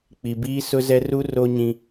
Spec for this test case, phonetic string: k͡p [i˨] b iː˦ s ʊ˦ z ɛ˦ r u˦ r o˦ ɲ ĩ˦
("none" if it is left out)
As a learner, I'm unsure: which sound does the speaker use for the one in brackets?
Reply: i˨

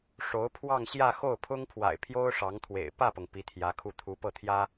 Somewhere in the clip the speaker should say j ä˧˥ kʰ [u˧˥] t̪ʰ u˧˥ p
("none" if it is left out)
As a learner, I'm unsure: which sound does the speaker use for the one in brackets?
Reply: u˥˩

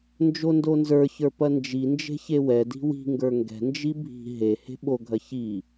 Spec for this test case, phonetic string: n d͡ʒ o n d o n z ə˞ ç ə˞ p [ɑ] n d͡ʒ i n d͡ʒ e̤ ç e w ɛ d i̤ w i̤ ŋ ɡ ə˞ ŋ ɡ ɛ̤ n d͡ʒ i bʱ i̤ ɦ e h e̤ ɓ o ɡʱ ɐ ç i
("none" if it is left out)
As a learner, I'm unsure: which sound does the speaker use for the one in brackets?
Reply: ɐ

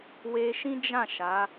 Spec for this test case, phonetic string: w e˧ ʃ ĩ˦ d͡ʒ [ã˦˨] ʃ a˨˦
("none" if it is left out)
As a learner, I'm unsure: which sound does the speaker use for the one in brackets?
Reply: ã˦˨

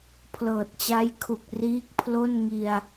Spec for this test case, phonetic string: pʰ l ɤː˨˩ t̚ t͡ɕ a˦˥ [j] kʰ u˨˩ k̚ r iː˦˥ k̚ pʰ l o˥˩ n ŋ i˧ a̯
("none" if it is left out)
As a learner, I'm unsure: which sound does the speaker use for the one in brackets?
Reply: j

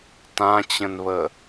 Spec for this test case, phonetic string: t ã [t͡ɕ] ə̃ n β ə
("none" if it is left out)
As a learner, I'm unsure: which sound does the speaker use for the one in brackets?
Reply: t͡ɕ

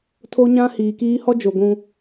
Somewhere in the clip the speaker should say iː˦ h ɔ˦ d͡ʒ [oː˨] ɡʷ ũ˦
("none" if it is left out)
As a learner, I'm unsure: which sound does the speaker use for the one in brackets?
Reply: o˨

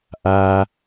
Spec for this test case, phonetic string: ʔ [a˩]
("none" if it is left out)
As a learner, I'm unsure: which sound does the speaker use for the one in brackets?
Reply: a˩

